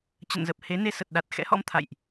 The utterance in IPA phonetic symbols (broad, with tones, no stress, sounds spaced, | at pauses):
t͡ɕ ə̰˧˨ n z ə˨˩ p̚ h e˨˦ n e˧ s ə˨˩ t̚ ɗ a˨˩ t̚ x ɛ̰˧˥ h ɔ̰˧˥ m t̪ʰ a̰˧˨ j ʔ